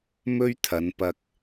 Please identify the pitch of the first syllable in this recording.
high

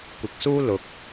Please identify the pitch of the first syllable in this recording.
low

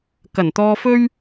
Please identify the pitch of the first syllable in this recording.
low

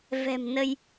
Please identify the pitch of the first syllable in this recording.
low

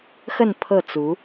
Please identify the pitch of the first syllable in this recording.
falling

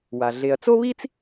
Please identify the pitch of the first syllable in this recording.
low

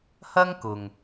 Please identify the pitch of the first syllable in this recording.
high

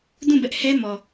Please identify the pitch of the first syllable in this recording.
falling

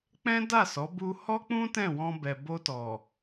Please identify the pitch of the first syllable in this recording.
high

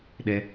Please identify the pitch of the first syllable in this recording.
high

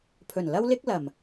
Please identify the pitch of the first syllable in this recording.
low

